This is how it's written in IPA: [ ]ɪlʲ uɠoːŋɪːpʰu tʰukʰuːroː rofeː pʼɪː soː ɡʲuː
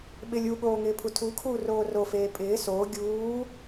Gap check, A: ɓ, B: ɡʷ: A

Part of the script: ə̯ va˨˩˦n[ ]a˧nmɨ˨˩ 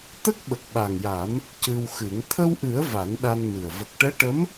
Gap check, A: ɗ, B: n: A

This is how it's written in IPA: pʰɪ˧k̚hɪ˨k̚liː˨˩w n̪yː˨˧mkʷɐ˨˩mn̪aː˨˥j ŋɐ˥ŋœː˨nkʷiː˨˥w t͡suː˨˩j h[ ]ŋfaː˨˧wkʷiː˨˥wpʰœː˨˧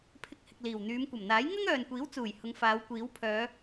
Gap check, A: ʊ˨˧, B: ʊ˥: A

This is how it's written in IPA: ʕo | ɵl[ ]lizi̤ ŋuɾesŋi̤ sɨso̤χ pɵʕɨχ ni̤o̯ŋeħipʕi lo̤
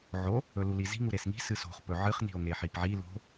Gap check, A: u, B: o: A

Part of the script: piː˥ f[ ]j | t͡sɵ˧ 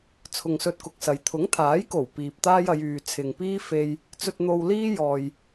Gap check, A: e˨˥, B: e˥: B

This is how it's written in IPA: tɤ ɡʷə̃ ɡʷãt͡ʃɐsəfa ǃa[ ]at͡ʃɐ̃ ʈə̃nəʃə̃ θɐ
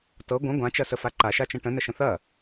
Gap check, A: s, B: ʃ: B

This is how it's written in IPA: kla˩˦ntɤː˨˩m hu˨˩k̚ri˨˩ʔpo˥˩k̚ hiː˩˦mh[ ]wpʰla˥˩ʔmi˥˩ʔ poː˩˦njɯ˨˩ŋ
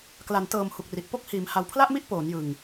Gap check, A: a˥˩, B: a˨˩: B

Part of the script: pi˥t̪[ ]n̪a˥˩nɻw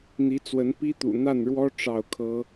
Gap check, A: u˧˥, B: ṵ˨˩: B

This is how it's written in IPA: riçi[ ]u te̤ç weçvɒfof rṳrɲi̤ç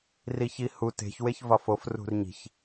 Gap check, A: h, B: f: A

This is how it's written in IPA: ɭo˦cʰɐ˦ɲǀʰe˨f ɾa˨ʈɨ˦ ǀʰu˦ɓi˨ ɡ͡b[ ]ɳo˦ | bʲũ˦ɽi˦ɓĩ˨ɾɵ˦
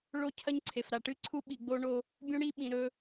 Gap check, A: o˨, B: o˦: B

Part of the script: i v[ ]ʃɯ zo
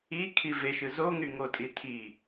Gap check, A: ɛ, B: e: B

